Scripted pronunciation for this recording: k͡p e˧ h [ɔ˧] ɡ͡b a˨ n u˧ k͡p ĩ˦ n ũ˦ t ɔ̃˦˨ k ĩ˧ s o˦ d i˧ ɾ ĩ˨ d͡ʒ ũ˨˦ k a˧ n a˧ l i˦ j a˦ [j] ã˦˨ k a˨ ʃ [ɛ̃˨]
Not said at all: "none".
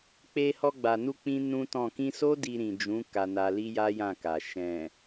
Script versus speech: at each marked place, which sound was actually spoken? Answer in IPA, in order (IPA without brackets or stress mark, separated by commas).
ɔ˧, j, ɛ̃˨